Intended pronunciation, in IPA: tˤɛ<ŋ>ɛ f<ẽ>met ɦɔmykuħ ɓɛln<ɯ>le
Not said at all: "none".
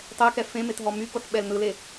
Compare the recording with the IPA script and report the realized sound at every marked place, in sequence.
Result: k, ẽ, ɯ

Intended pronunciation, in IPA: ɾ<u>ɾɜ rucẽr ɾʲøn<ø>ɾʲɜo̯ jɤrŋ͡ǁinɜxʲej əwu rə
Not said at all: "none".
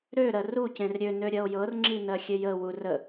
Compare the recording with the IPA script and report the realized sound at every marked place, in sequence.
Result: ø, ø

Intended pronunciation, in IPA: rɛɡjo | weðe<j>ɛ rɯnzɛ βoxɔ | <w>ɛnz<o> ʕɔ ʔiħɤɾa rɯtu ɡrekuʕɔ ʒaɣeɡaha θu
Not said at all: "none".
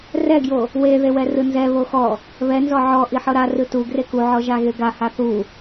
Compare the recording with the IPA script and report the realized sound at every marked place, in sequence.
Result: w, β, ɔ

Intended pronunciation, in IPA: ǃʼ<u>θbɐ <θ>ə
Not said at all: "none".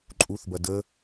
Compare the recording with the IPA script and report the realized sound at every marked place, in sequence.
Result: u, d

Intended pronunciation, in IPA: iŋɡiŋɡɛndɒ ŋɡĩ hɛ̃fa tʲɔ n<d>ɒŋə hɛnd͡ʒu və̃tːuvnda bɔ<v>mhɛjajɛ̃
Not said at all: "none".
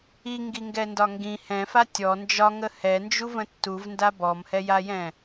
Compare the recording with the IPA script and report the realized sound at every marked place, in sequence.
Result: d͡ʒ, none

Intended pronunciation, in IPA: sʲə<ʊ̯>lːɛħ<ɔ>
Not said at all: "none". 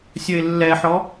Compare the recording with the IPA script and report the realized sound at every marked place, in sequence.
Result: ɪ̯, ɔ

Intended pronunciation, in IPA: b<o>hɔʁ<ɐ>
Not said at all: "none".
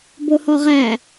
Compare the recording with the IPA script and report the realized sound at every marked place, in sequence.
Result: o, æ

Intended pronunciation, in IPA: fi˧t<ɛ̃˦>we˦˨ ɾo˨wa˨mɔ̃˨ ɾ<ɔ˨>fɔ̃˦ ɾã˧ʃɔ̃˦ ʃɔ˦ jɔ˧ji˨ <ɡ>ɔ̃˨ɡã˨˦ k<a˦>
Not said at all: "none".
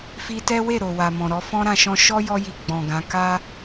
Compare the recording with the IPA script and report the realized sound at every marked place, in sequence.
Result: ɛ˦, ɔ˧, ɡ͡b, a˦

